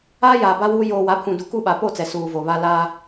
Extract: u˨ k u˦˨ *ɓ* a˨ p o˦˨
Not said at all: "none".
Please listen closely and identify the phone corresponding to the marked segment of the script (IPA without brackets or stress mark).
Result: ɓ